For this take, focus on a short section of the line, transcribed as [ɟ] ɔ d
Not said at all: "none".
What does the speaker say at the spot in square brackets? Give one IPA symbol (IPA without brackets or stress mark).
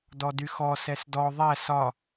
d